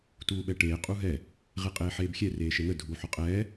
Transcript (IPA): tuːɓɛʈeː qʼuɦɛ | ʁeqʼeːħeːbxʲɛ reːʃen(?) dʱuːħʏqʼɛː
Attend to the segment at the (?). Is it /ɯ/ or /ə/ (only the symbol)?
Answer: ə